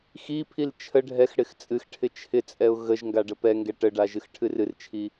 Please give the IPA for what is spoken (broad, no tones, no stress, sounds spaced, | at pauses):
x i pʰ i l t͡ʃʰ ə ɖʱ ɛ x ɽ ɪ x t͡sʼ ɨ x ʈʰ ɪ t͡ʃʰ ɪ t͡sʼ ɛ ʊ̯ ɣ ə ʒ ŋ ɡ a ɖ ə p ɛ ŋ ɡ ɛ ʈ ə ɖ a ʒ ɨ x ʈʰ ɨ r ɨ r t͡ʃʰ i